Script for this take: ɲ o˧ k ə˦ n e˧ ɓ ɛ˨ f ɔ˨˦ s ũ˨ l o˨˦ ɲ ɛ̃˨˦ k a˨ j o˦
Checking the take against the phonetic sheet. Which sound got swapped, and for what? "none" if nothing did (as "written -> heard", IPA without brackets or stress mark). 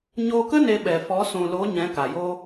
none